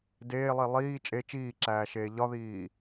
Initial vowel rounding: unrounded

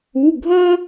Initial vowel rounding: rounded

